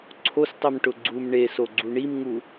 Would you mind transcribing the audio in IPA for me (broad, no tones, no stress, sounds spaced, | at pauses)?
ǀʰ o s tˤ i m ʈ ʊ ɡ͡ǀ u m ɳ e s o ɡ͡ǀ u ɳ i m ŋ u